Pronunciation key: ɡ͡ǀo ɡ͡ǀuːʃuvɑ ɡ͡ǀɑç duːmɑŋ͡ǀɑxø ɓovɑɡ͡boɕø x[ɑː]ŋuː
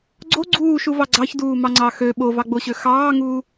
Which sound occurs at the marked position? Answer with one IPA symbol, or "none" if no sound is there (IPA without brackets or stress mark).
ɑː